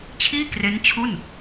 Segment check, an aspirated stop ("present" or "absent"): present